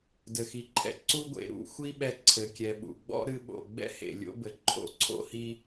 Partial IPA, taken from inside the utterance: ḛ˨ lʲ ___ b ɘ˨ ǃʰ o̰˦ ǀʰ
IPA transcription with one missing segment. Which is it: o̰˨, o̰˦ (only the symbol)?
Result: o̰˦